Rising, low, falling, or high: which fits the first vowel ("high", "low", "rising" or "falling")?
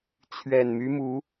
low